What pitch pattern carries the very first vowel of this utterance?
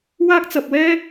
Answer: high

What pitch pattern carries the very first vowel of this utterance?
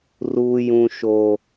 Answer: high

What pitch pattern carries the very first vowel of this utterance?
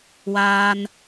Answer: high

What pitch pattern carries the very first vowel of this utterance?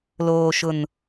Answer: low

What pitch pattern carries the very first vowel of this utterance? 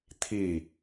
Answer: falling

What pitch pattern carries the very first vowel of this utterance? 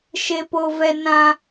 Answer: high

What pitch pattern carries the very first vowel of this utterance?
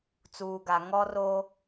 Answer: low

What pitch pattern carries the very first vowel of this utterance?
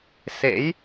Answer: rising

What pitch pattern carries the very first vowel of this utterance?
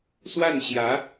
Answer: falling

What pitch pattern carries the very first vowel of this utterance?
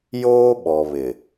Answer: high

